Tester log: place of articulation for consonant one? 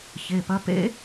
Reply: palatal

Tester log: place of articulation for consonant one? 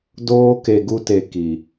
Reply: alveolar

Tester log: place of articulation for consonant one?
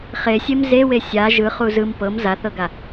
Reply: uvular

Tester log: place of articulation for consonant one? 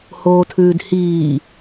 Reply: glottal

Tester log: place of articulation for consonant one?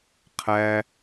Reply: uvular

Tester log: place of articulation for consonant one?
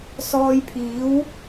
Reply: alveolar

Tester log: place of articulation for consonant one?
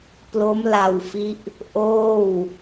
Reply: labial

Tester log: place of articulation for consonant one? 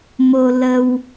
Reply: labial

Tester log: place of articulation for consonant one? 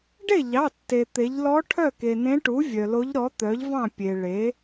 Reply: retroflex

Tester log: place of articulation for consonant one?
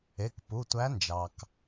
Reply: velar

